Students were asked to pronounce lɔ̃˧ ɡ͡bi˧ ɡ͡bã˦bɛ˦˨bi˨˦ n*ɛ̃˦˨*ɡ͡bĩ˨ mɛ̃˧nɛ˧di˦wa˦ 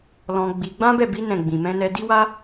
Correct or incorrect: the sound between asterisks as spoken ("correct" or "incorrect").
correct